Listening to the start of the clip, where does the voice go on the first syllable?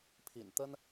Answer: low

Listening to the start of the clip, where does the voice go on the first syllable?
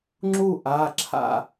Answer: falling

